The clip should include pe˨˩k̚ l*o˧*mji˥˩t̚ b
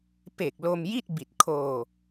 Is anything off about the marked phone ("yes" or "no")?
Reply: no